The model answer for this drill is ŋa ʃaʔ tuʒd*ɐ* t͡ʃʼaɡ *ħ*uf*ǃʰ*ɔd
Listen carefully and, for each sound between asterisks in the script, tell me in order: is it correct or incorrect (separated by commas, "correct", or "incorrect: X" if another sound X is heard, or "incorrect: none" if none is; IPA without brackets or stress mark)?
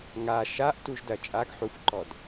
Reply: correct, correct, incorrect: ǃ